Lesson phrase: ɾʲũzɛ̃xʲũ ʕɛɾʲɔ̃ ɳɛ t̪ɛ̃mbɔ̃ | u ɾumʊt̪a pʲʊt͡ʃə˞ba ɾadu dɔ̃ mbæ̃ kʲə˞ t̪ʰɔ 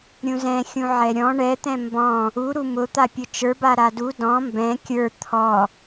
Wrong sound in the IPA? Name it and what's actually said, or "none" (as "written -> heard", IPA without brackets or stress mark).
æ̃ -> ɛ̃